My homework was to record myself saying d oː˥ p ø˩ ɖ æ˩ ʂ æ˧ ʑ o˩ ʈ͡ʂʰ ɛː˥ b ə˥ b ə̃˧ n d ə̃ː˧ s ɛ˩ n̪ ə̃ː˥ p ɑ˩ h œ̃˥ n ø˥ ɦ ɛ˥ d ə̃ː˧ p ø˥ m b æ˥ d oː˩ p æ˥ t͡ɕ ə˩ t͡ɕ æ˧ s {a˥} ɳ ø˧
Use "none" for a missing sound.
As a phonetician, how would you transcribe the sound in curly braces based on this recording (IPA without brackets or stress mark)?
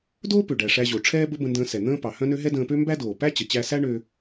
æ˥